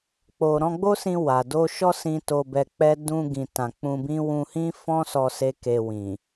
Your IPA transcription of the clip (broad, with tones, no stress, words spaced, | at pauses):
k͡po˨ɾɔ̃˧ɡ͡bo˦sĩ˧ wa˨ do˧ʃɔ˦sĩ˧ to˧bɛ˧k͡pɛ˦ dũ˧ ɡĩ˨ tã˨k͡pũ˧bĩ˦ wũ˧hĩ˦fɔ̃˦sɔ˧ se˦ke˧wĩ˨